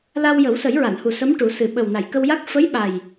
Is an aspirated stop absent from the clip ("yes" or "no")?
yes